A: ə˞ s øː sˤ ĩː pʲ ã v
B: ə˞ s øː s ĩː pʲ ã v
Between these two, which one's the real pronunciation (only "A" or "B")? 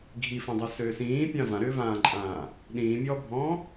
B